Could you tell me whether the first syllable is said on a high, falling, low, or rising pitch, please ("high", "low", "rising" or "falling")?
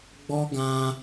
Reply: high